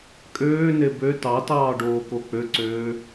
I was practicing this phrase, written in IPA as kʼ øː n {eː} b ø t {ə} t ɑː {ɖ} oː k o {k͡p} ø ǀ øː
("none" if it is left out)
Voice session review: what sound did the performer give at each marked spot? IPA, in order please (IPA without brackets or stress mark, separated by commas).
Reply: e, ɑ, ɖ, k͡p